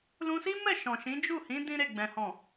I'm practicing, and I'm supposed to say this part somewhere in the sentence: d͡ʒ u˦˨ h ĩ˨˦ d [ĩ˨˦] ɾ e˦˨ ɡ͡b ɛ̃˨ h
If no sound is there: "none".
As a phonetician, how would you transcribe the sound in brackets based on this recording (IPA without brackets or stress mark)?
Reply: ĩ˦